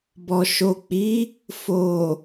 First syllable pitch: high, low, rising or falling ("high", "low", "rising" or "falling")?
low